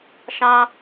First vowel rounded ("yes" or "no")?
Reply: no